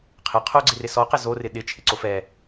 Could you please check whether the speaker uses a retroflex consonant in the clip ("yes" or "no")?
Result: no